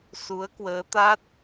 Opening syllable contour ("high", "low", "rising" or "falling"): rising